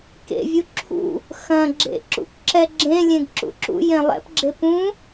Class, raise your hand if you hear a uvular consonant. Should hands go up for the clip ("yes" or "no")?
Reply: no